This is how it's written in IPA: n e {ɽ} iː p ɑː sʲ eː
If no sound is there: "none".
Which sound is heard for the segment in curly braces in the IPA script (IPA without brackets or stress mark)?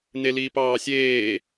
l